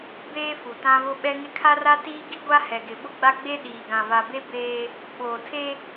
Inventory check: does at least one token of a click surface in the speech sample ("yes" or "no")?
no